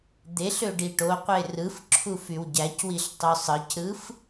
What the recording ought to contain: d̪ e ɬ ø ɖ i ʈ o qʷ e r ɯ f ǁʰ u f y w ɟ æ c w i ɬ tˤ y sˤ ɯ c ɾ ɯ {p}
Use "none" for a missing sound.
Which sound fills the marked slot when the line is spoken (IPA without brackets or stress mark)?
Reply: f